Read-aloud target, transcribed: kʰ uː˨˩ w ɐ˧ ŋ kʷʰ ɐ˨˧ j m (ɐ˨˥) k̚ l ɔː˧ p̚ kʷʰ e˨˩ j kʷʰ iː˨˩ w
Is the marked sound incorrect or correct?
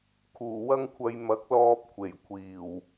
correct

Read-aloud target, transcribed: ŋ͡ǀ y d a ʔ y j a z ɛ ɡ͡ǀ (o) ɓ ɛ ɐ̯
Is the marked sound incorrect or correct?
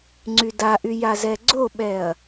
correct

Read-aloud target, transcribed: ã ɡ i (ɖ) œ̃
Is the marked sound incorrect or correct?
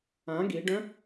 correct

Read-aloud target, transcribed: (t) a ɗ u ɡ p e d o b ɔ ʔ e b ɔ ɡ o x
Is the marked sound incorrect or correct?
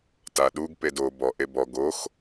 correct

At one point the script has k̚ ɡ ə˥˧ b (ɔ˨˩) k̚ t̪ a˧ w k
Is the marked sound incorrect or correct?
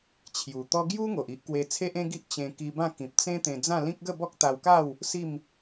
incorrect: ɔ˦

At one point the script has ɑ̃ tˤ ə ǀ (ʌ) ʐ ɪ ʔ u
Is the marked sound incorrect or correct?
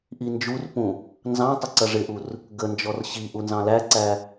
correct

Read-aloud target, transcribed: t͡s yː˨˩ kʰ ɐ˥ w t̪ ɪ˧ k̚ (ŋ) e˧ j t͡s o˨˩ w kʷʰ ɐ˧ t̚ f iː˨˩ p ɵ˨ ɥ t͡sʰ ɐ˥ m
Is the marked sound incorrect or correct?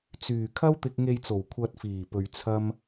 correct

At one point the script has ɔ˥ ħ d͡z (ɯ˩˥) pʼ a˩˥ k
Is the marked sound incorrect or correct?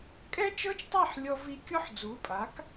incorrect: u˩˥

